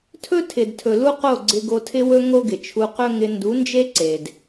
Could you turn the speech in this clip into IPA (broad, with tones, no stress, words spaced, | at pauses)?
tʰɵ˦tʰɪ˨dtʰɵ˨ lu˦qo˦˨ɡ͡ǀɪ˧ ɡo˧tʰɪ˦wɵ˦ ŋo˦ɡɪ˨t͡ʃʰu˧ qɵ˦ŋɪ˧ ndu˨˦nd͡ʒe˦ ǀe˨d